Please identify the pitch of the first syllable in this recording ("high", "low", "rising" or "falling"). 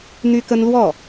high